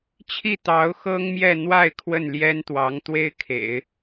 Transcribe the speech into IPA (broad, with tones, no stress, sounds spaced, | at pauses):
t͡ɕʰ i˥˩ t̪ ɑ˧˥ ʊ̯ x ɤ˥ ŋ m j ɛ˥˧ n̪ w a˥˧ ɪ̯ kʰ w ə˥˩ n l j ɛ˥ n t̪ w ɑ˧˥ ŋ t̪ w e˥ ɪ̯ kʰ ḛ˨˩˦ ɪ̯